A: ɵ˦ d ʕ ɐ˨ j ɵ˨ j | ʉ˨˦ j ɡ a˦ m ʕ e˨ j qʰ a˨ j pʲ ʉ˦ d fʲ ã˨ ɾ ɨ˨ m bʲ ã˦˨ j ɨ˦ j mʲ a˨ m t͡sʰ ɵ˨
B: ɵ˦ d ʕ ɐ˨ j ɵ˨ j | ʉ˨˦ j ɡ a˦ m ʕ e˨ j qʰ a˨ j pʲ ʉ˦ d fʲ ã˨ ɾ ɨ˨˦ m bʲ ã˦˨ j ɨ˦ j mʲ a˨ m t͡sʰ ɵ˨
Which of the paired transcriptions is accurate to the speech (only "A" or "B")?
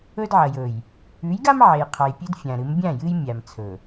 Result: B